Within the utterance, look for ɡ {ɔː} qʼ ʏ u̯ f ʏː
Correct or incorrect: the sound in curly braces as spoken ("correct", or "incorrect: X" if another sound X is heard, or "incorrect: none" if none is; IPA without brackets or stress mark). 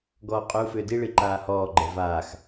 correct